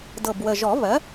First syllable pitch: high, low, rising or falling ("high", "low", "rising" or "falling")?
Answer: low